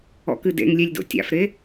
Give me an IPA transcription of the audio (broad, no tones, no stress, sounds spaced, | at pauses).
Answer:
ɔ̰ k ɨ d ḛ ŋ lʲ e lʲ d o̰ tʲ a̰ f ɾ e